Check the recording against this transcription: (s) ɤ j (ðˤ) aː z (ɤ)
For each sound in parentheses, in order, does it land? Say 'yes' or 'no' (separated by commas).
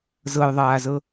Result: no, yes, yes